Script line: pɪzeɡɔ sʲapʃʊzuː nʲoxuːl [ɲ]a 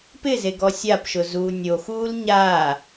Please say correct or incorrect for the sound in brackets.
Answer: correct